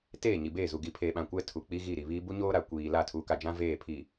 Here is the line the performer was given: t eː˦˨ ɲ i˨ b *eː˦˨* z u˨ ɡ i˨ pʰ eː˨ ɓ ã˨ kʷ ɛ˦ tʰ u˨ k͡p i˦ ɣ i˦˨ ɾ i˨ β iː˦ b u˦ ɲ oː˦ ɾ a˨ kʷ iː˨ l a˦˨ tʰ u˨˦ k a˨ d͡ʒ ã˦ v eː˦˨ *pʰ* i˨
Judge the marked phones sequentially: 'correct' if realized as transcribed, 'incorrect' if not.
correct, correct

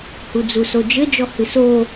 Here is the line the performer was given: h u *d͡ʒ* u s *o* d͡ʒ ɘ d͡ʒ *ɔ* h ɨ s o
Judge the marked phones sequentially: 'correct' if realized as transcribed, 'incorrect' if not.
incorrect: d͡z, correct, correct

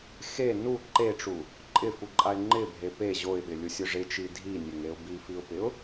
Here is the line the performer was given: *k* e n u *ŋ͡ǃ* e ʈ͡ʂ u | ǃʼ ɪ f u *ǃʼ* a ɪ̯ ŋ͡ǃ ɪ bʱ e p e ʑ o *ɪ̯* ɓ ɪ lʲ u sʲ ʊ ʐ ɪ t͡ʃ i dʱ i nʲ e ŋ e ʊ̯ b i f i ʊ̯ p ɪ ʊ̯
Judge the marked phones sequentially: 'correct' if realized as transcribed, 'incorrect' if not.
incorrect: x, incorrect: ǃ, correct, correct

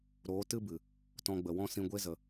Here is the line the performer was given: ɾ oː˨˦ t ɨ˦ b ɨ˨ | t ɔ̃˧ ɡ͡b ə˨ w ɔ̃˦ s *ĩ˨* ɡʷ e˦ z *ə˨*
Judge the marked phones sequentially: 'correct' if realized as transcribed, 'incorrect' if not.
incorrect: ĩ˧, correct

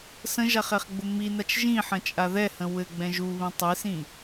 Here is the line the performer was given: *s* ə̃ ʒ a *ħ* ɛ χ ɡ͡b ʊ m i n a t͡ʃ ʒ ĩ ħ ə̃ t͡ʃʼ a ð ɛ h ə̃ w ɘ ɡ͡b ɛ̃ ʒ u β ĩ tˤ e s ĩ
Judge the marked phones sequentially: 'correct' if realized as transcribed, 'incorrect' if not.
correct, incorrect: χ

